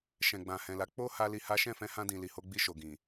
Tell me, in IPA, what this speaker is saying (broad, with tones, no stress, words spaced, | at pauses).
ʃɛ̃˨ɡ͡bã˨hɛ̃˨la˨˦ k͡po˦ ha˦li˧ha˦ ʃɛ̃˦˨fɛ̃˧hã˧dĩ˨ li˨ho˧ɡ͡bi˧ ʃo˨ɡĩ˨